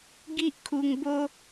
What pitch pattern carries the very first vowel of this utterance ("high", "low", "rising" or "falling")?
high